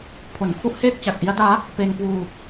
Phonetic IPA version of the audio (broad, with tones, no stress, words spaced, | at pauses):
pʰo˨˩nkʰu˥˩ʔheː˥˩k̚ t͡ɕa˨˩k̚ʔi˦˥a̯daː˦˥ | pe˧nkwuː˧